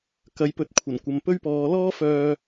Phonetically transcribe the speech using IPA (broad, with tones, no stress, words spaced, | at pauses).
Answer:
kɐ˨˥jpɵ˨˥t̚kʷʰɐ˨˩n kʷɐ˨m pɵ˥ɥpɔː˨˧ lɔː˥fœː˧